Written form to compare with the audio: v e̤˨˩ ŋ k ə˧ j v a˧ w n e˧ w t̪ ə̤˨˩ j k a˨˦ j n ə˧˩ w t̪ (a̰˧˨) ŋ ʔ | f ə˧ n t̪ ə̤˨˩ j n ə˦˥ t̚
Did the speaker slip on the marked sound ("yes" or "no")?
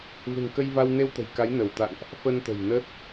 no